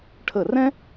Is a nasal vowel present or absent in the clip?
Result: present